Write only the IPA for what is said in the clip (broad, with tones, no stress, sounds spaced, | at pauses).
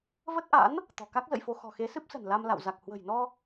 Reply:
v ə˦˥ t̚ ʔ a̰˧˥ n | t̪ ɔ̤˨˩ k a˦˥ k̚ z ə̰˧˨ j f o˧ x ɔ̤˨˩ x e˨˦ s ɨ˦˥ p̚ s ə̤˨˩ n l a˧ m l a̰˧˨ w z a˨˩ k̚ h w ə̤˨˩ j n ɔ˧